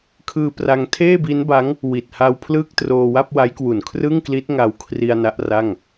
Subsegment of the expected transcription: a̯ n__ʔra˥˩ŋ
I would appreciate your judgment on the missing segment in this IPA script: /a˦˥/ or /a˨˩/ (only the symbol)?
a˦˥